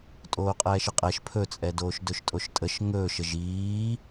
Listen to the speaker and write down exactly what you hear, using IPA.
tʼ oː qʼ ɛː ʃ ə qʼ ɛ ʃ pʰ ɵ t͡sʼ ɛ d oː ʃ d ɵ ʃ tʼ o ʃ tʼ ə ʃ ŋ ɵː ʃ ə ʒ iː

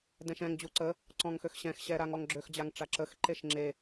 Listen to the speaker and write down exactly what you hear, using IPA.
d ɛ̃ ʃ ɛ̃ ŋ d͡ʑ u ǀ ə | ǀ ɔ̃ ŋ x ø x ɕ ɛ̃ x ɕ ɛ ɾ a ŋ ɔ ŋ ɡ͡ǁ ø x d͡ʑ a ŋ ʈ͡ʂ a ǁ ə x ǃ e ʃ ŋ͡ǁ e

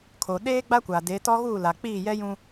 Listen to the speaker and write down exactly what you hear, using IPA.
kʰ o˨ ɗ eː˦ ɡ͡b a˦ kʷ a˨ d e˨˦ t ɔ˦ ɣ uː˦˨ l a˨ k͡p iː˦˨ j ɛ˦ j ũ˦

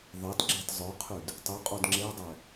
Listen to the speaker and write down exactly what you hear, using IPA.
ðˤ ɛ t ɡ͡ǁ e t zˤ œ qʰ y d | tˤ y qʼ o d ŋ͡ǁ e dˤ ɛ

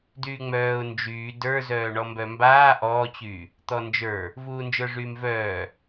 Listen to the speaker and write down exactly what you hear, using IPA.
d yː ŋ͡m œː ʊ̯ n d͡ʒ yː d ə˞ z œː ɳ ɔ m b œ m b aː ʔ ɔː t͡ɕ yː | t̪ ɔ n d͡ʒ ə˞ | v uː n d͡ʒ ə˞ ʐ yː m v œː

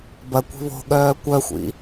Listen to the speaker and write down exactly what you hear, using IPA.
b ɐ kʷ i̤ β o̤ ɠ œː kʷ œ xʷ ḭ

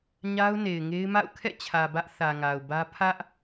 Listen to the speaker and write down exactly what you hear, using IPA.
ɲ a˦ ʊ̯ n e˨ ɪ̯ ŋ e˦ ɪ̯ m a̰˦˨ ʊ̯ kʰ ɛ̰˦˨ t͡ɕʰ ä˨ b ä˦ ʔ θ ä˨ ŋ a˨ ʊ̯ b ä˦ pʰ ä˦ ʔ

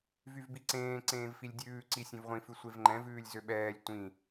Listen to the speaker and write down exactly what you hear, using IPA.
v y v b i ǀ ẽː ǀ ẽː v f i lʲ dʲ ʉː ǀ i sʲ ẽ v ʁʷ ĩ f ʉ sʷ e v ŋ͡ǃ ɛ̃ v ʉː lʲ z ø ɓ ɛː lʲ tʷ ĩ

